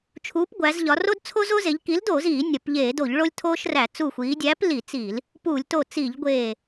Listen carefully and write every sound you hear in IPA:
t͡ʃʰ u˨˥ p ɡʷ æ˩˧ z ʎ ɒ˩˧ r o˦ d t͡sʰ o˦ z o˦ z e˩˧ ʎ k i˨˥ l d oː˧˩˧ z iː˧˩˧ nʲ ɒ˩˧ p ʎ eː˧˩˧ d o˧˩˧ ʎ ɭ o˦ lʲ tʰ oː˦ ʃ r æ˧˩˧ t͡s u˧˩ xʷ iː˩˧ dʲ æ˨˥ p l i˧˩˧ t͡s i˧˩˧ l | p u˧˩˧ lʲ t o˧˩ t͡s i˧˩˧ ʎ ɡʷ eː˧˩

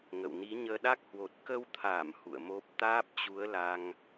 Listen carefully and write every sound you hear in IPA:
ŋ ə̰˧˨ w n i˨˦ ɲ əː˧ ɗ a˦˥ k̚ h w o˨˩ t̚ k ə˧ w t̪ʰ aː˧˩ m h ṵ˧˨ ə̯ m o˦˥ p̚ t̪ aː˦˥ p̚ t͡ɕ u˨˦ ə̯ l a˧ ŋ

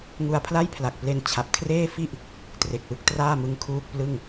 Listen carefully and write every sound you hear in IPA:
ŋ u˧ a̯ pʰ l a˥˩ j pʰ l a˨˩ k̚ p l e˧ n t͡ɕʰ a˨˩ p̚ kʰ r eː˥˩ f i˥˩ ʔ | t r e˨˩ k̚ w ɯ˥˩ k̚ t r aː˥˩ m ɯ˧ ŋ kʰ uː˥˩ k̚ p l ɯ˥˩ ŋ

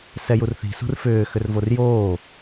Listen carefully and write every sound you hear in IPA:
s ɛ j u r θ i̤ s ṳ r f ʏː x ʏ r v o r j oː

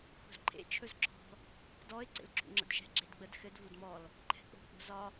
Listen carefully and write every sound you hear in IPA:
x ṳ z ǃʰ ḛ t͡ʃʰ ɵ z ǁʰ ɔ̤ | d ɔ ɪ̯ ǀ ḛ l ǁʰ ṵ ŋ͡ǁ ə̰ d ʃ ɛ̤ ɡ͡ǁ e d ɡ͡b ə d x ɘ d v u d m ɔ l | ǃʰ ɛ̤ k͡p o̤ k͡p o̤ z ɒ

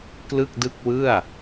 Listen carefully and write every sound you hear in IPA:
k l ɯ˥˩ k̚ d ɯ˥˩ k̚ w ɯ˥˩ a̯

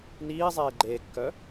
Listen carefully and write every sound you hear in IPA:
n iː zˤ eː ɡ͡ǃ eː kː œ

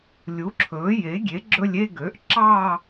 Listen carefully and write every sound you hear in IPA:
lʲ u˩˥ ǁʰ ɵː˩˥ j e˩˥ ɡʲ e˩˥ ɡ͡ǁ ɵ˥˧ lʲ e˥˧ ɡ ø˩˥ ʔ ǁ ɑ˥˧

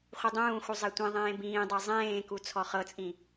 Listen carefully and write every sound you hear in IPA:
χʷ i dˤ ũː x u zˤ ɛ tʷ ẽ ðˤ ẽː b ĩː dˤ ɤ zˤ ẽː k u t͡sʰ ɔ χ ɤ t͡sʼ ĩ

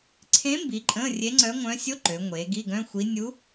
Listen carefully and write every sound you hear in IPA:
ǀʰ ẽ˧˥ m b i˩˧ ǃʼ ə̃˧˥˧ rʲ e˧˥ ŋ͡ǀ œ˧˥ ŋʷ œ̃˧˥ sʲ o˧˥˧ ǃ ø˩˧ ŋʷ e˩˧ ɡ i˧˥˧ ɡ œ̃˧˥˧ xʷ i˧˥ nʲ u˧˥

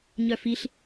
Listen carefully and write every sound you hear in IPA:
ɲ œ f i ɬ

